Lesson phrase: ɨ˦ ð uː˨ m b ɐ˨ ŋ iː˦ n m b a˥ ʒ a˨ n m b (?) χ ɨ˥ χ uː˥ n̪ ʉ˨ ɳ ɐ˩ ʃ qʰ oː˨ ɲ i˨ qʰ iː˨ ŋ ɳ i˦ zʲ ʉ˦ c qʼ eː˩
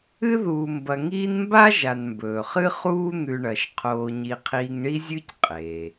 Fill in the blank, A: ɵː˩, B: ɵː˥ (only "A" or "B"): A